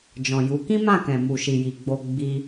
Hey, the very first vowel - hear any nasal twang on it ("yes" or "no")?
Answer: yes